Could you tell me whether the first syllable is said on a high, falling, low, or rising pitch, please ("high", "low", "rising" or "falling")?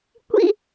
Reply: high